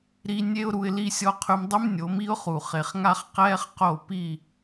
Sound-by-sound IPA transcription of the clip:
ɾ i˦ nʲ e˦ ʊ̯ ɾ u˧ ɪ̯ l i˧ sʲ ɔ˧ qʰ y˧ m dˤ y˦ m nʲ o˨˦ m i˦ ʊ̯ χ u˨ χ e˨ χ ŋ a˦ χ q ɛː˦ χ q o˦˨ p i˦˨

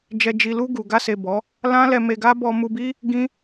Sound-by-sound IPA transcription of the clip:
d͡ʒ ɛ˨ d͡ʒ i˨ l u˧ ɡ u˨ ɡ a˧ s e˨ b ɔ˨˦ | l ã˦ l ɛ˧ m e˧ ɡ a˦ b ɔ˧ m u˧ b i˦ | ɡ ĩ˦

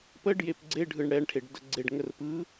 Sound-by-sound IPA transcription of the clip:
p ə ɖ j e p ɡ͡ǀ e ɖʱ ɯ ɳ ɽ ɛ ɳ ʈʰ e ɖ d ə ɡ͡ǀ e ɖ ŋ ə r p ɯ

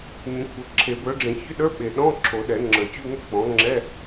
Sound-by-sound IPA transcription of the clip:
ɲ ə̃˩˥ kʷʰ ə˩˥ ǁʰ e˨˩˦ b ə˞˩˥ ɖ͡ʐ ẽ˨˩˦ ç ʏ˧˥˧ ɗ ə˞˧˥˧ ɓ e˨ ɗ ɔ̃˧˥˧ ǁʰ o˨˩˦ ɗ ɛ˨˩˦ ŋ͡ǁ ə˞˨˩˦ t͡ɕ u˧˥˧ ŋ o˥˧ k͡p ɔ̃˩˥ ŋ͡ǁ ɛ˧˥˧

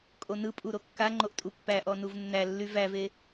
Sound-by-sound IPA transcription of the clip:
kʼ o n ɯ pʼ u ɾ o kː a ŋ͡ǃ o ʔ tʼ u pː æ ʔ ɔ n u v nː æ lː y v æ v e

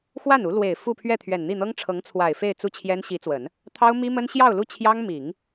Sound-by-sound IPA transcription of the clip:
x w a˥˩ n u˧˥ l w e˨˩ ɪ̯ f u˥˧ pʰ ɥ ɛ˥˩ t̪ʰ ɥ ɛ˨˩ n n̪ i˥˩ n̪ ɤ˥ ŋ ʈ͡ʂʰ ɤ˧˥ ŋ t͡sʰ w a˨˩ ɪ̯ f e˥˧ ɪ̯ t͡s u˥˩ t͡ɕʰ j ɛ˥ n ɕ i˧˥ t͡s w ə˨˩˦ n | t̪ʰ ɑ˥ ʊ̯ m i˥ m ə˥ n ɕ j ɑ˥˧ ʊ̯ l u˥˩ t͡ɕʰ j ɑ˥ ŋ m i˨˩˦ ŋ

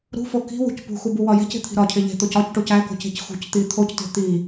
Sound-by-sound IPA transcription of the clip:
ɾ ṳ f o k i̤ w ṳ c p ṳ x u b u w ɒ j e̤ c e̤ t̪ʰ i̤ ɾ ɒ cʰ e ʎ e̤ t̪ o c ɒ c ʈ o c æ k o̤ c e̤ c x ṳ c t̪ i t̪ʰ o c t e̤ t̪ i

